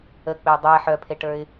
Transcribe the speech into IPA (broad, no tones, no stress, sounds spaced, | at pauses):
ə k͡p e dˤ e ħ œ pʰ e ʈ ə˞ ɪ̯